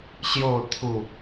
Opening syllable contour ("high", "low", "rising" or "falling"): falling